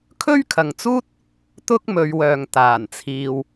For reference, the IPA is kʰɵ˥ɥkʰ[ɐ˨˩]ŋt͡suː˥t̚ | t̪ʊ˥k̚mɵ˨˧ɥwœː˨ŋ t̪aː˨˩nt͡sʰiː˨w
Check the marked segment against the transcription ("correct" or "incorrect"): incorrect